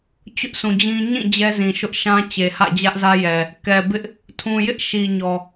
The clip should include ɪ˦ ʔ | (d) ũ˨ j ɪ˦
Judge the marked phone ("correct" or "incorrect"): incorrect